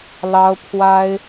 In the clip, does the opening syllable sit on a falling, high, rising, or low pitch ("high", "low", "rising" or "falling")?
high